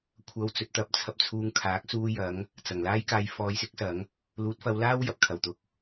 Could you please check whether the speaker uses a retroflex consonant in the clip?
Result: no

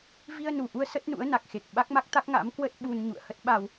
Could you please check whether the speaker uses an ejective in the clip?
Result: no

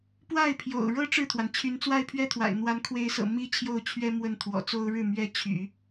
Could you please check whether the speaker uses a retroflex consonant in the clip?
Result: yes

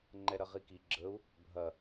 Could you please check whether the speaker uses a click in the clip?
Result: yes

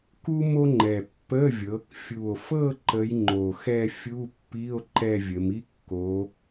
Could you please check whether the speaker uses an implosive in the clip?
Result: no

